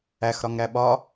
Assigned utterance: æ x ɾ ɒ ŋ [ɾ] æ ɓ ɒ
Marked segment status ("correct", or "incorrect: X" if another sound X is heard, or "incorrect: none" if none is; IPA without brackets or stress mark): correct